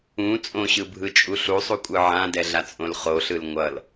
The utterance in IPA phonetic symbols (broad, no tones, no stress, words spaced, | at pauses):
ũ t͡sʼõɕɯbʱɯt͡ʃʼu ɬusˤukʷʼɯ ʕãdɛɮat͡sʼõl χoɬɯl ŋʷʌl